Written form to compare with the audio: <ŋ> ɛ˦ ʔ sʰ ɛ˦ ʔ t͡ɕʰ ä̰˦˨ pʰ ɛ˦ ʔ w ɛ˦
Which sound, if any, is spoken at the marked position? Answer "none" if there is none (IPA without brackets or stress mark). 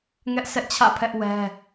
ŋ